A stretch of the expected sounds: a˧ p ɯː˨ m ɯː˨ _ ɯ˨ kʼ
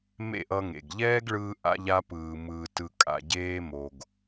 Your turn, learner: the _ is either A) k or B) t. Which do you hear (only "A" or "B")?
B